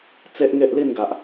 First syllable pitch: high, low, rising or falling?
high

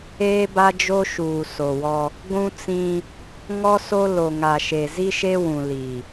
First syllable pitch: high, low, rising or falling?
high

